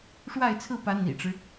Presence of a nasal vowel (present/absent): absent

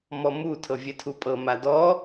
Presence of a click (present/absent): absent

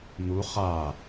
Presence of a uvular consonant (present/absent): present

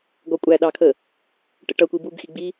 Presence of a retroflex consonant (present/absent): present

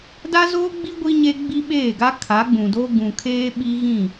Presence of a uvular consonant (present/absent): absent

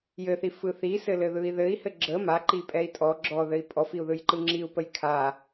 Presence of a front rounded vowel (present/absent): absent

